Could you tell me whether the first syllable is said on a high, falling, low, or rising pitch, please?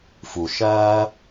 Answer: low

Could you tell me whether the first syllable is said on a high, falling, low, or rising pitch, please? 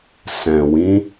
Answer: low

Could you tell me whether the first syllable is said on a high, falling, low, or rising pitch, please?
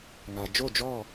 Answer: low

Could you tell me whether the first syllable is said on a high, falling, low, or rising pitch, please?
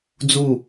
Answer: falling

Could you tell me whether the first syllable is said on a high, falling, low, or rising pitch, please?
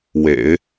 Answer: low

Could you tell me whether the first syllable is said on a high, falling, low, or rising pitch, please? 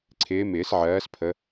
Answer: rising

